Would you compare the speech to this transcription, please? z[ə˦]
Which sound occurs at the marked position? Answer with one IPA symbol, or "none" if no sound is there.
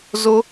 ʊ˦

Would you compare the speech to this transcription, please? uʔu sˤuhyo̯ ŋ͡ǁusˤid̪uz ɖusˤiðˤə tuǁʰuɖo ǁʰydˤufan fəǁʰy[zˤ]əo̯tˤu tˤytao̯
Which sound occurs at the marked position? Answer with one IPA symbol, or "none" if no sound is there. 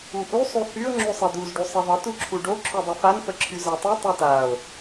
z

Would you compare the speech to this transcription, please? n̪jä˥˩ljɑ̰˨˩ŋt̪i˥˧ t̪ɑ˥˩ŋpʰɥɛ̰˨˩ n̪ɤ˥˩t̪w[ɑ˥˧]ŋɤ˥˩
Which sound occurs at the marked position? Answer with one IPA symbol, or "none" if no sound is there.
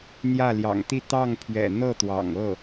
ɑ̰˨˩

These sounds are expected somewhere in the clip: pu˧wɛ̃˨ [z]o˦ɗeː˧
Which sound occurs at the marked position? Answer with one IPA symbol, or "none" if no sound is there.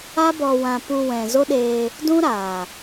z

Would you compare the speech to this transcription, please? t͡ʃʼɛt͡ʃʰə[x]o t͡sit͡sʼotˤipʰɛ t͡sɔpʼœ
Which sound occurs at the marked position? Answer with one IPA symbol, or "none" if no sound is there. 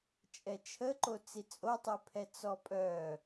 ǃ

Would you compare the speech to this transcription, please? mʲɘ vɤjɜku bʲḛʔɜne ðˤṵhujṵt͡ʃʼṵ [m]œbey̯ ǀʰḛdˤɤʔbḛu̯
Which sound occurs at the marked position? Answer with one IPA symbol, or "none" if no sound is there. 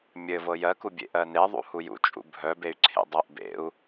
bʱ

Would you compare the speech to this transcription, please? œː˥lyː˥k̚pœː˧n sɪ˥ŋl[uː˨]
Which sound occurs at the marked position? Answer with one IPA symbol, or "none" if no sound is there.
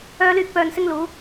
uː˨˥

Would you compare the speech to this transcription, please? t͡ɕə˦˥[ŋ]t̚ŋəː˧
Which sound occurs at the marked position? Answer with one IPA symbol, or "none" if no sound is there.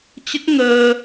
none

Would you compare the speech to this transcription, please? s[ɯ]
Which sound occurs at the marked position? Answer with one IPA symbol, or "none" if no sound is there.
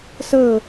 ɤ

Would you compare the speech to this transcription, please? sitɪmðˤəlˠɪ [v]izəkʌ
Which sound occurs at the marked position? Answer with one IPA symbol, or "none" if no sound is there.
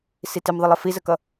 f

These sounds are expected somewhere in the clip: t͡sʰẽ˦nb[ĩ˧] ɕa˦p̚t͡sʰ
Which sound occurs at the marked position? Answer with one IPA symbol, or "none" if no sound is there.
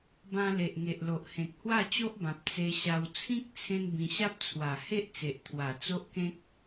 ĩ˧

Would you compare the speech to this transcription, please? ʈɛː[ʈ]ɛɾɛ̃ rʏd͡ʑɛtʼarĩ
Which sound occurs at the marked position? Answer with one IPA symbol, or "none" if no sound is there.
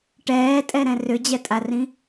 tʼ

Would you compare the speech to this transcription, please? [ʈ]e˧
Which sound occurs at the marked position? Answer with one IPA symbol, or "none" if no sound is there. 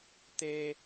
t̪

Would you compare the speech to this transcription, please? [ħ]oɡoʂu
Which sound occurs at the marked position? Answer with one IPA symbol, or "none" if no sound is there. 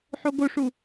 ħ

